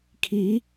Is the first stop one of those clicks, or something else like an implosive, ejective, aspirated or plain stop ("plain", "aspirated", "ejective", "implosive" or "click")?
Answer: aspirated